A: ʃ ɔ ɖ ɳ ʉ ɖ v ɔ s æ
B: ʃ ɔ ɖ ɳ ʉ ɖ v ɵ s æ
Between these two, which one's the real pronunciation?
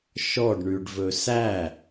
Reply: B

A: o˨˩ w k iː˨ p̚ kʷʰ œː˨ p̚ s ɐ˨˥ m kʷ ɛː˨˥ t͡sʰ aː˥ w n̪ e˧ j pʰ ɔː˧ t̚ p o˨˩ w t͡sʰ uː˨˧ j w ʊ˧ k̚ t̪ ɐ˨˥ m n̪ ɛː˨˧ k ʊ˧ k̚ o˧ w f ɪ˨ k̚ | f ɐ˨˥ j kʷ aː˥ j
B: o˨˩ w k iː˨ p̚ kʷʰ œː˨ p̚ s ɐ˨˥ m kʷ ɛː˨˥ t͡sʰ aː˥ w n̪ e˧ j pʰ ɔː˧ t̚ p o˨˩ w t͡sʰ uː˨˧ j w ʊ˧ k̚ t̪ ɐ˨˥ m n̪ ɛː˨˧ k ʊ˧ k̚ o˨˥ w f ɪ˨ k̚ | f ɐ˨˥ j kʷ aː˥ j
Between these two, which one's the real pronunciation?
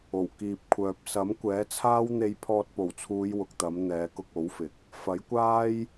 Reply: B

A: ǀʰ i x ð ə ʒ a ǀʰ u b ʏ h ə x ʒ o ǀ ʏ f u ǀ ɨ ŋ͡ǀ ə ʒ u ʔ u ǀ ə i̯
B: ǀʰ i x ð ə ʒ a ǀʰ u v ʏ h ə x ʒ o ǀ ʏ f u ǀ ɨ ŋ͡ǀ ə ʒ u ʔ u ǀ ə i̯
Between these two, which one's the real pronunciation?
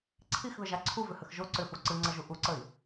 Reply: B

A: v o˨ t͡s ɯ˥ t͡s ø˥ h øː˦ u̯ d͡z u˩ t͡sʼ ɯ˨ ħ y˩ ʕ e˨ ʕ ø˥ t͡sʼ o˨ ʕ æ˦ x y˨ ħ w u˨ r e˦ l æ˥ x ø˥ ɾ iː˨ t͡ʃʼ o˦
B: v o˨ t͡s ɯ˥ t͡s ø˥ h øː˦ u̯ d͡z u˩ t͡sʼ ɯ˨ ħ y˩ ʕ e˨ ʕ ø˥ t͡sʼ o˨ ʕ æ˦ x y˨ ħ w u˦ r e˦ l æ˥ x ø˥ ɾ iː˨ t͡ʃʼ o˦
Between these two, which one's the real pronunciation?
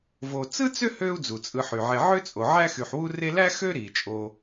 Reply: B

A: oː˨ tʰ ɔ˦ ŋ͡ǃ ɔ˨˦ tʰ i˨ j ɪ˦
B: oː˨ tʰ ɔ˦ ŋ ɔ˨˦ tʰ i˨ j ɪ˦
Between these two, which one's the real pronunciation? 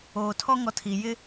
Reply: B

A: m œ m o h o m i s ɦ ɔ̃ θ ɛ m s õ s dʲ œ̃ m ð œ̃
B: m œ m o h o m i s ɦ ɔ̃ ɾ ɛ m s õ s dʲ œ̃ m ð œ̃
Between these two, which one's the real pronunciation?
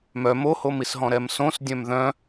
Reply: B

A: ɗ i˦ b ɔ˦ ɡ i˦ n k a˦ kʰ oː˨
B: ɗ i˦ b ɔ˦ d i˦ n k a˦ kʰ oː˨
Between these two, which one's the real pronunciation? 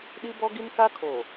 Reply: A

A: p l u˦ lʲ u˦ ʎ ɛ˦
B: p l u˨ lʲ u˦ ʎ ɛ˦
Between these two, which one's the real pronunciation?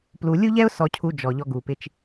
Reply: B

